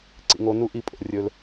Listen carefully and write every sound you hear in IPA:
ǀ ḭ˨ ŋ o˨˦ n u˦ ʔ i˨˦ pʼ o̰˨ rʲ ɵ˦ l

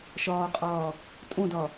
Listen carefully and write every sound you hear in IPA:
ʃ ɒː qʼ ɒː | tʼ õ d ɒ

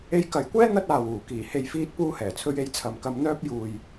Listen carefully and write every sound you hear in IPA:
e˧ j k ɐ˨ j kʷ ɛː˥ n̪ ɐ˥ t̚ aː˨ w uː˨˩ k iː˨˩ h e˨ j f iː˧ t̚ p uː˧ h ɛː˨˩ t͡sʰ ɵ˧ ɥ e˨˧ j t͡sʰ ɐ˨ m k ɐ˧ m n̪ œː˥ p̚ j uː˨ j

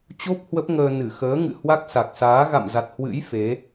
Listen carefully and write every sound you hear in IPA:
t͡ɕ o˦˥ p̚ h w ə˦˥ p̚ ŋ əː˧ n ɨ˧˩ x əː˨˦ ŋ ɨ̰˧˨ h w a˦˥ k̚ s a˨˩ k̚ s aː˨˦ ɣ a̰˧˨ m z a˨˩ t̚ h w ɨ̰˧˥ j f e˨˦

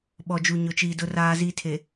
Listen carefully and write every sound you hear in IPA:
ɓ ɔ˨ d͡ʒ u˨ ɲ ʊ˨ t͡ʃ iː˨ d ʊ˨ r aː˨ z iː˨ tʰ e˨

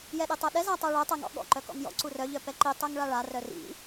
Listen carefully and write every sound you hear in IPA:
j ɛ ɗ e tˤ œ ɗ ɛ z a tˤ œ ɭ œ tˤ œ ŋ ɔ̰ ɠ ɔ̰ ǃ œ k ɔ̰ ŋ j ɔ̰ ǀ u r œ ʎ œ p ɛ ǃ i tˤ œ ŋ ɭ a ɭ a r œ r ḭ

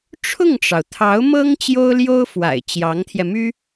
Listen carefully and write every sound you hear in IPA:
ʈ͡ʂʰ ʊ˥˩ ŋ ʈ͡ʂ ɑ˩ ʊ̯ t̪ʰ ɑ˧˥ ʊ̯ m ɤ˥ ŋ t͡ɕ j o˥ ʊ̯ l j o˥ ʊ̯ f w a̰˨˩ ɪ̯ t͡ɕ j ɑ˧˥ ŋ t̪ʰ j ɛ˧ m y˥

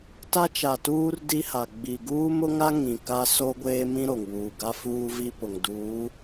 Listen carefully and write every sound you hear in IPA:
t a˦ t͡ʃ a˨ t uː˦ r d i˦ h a˨ ɡ͡b i˨ ɡ uː˦ m ʊ˦ ŋ a˦ ŋ ĩ˨ k a˦ s o˦ ɡʷ eː˦ m ĩ˦ ɾ o˨ ŋ w uː˨ ɡ a˦ f uː˦ v i˦ p ʊ˨ ŋ d uː˨˦

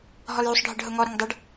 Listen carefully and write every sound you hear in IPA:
ɦ ɔ l j u sˤ ɖʱ ɪ ɖ ɦ ʊ ŋ ɔ ɾ ɪ ŋ dˤ æ ɖ

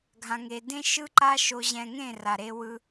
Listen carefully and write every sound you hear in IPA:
ɡʱ ã˧ ŋ e˧ d ẽ˦ ʃ ɯ˦ ǃ a˦ ʃ o˧ ʑ ɛ̃˧ ŋ ẽ˦˨ r a˨ ɾ e˧ w ɯ˧

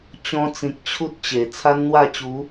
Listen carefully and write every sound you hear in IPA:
t͡ɕ ɔ̃˧ t͡s ĩ˨ k̚ t͡ɕʰ u˦ t̚ t͡ɕ e˨˩ t͡sʰ a˦ n n̪ w a˥˧ t͡ɕ u˨˦

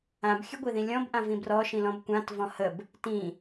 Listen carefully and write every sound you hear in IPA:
ã b xʲ ɘ ɡʷ i ð ĩ lʲ ɔ̃ b ʔ ã v ĩ b r ɔ ʃ ĩ l ɔ̃ b kʷ ã t v ɔ̃ h ə b | t ĩ

